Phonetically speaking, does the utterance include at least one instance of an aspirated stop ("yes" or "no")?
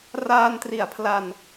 yes